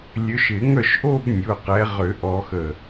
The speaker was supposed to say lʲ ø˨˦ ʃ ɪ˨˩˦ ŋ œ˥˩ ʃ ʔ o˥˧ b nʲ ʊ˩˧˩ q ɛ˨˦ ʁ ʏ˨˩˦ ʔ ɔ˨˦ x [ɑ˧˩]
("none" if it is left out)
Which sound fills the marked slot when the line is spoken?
ə˧˩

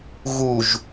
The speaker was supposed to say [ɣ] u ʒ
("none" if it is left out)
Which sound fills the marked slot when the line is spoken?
ɣ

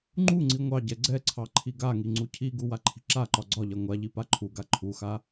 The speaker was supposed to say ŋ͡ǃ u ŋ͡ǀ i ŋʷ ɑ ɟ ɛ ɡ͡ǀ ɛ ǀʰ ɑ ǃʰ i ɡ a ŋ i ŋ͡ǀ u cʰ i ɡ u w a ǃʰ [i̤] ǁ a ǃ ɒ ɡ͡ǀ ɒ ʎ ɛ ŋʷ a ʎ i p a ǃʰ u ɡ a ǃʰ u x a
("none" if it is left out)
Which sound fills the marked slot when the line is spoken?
i̤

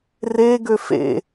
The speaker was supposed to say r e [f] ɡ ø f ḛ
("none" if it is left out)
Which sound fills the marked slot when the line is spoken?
none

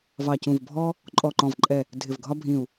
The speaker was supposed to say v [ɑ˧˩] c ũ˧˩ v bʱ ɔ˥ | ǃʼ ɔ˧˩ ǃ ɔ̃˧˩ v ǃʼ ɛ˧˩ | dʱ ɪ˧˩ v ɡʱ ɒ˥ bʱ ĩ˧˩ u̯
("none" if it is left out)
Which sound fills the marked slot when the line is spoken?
ɑ˧˩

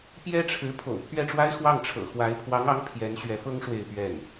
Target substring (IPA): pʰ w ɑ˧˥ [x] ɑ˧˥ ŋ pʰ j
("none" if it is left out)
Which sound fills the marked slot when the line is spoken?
ŋ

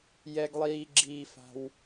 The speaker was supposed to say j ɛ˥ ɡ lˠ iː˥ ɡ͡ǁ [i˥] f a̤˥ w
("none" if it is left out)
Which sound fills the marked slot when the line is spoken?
iː˥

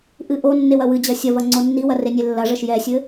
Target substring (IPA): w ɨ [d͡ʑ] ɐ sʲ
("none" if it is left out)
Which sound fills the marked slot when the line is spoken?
d͡ʑ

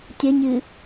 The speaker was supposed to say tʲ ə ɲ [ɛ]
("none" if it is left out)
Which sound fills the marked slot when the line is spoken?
ɨ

